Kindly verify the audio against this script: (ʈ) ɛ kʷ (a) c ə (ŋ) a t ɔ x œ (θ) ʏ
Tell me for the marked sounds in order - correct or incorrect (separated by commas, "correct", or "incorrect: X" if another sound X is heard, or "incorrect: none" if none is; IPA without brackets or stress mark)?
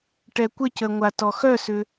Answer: correct, incorrect: ə, incorrect: ŋʷ, incorrect: s